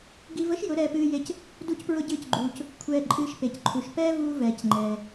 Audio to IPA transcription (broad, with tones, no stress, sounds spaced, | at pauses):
ɡ i˧ v ə˦ ʃ j ʊ˨˦ ɾ ɛː˧ p ɨː˧ j e˧ c | d u˦ c p ɹ ʊ˦ ɟ ɨː˦ c ɡ͡ǃ uː˧ c | kʷʰ ɛː˧ ǃʼ ɨː˧ ʃ p e˨ c ǃʰ u˨ ʃ p ɛː˦ v uː˧ v ɛː˨ c ŋ͡ǃ ɛː˨